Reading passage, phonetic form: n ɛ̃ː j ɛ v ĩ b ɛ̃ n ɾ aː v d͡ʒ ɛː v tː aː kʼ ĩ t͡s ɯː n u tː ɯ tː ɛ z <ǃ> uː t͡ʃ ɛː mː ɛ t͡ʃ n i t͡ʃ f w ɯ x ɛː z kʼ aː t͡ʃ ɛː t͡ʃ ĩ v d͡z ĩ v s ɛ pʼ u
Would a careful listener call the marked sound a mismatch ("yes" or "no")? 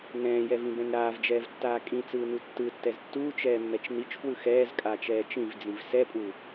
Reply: yes